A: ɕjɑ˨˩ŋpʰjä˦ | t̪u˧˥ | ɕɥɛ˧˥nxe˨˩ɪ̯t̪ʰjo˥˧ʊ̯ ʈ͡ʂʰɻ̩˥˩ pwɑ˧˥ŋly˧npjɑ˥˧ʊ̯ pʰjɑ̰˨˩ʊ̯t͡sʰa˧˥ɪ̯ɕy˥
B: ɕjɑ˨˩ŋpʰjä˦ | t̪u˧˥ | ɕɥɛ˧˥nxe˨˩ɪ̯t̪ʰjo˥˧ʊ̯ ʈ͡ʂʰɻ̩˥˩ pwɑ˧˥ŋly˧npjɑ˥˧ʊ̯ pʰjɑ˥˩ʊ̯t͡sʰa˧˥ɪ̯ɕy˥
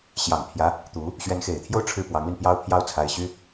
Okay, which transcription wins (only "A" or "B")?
B